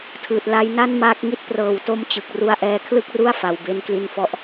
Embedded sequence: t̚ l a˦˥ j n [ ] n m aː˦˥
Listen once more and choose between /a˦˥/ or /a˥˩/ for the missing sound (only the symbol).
a˥˩